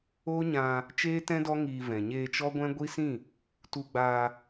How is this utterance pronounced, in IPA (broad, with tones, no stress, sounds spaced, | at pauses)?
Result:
o˦ ɲ ã˧ | t͡ʃ eː˦ t ɛ̃˦ d ɔ˦ ŋ iː˧ v ɛ̃˨ ɲ eː˧ t͡ʃ ɔ˦ ɡʷ ɛ̃˦ ɡʷ i˦ s ĩ˦˨ | t u˧ ɡ͡b aː˧